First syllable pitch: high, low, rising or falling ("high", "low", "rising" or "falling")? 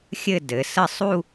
falling